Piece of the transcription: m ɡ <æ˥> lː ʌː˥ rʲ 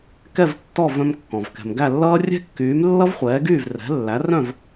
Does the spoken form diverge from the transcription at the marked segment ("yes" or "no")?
yes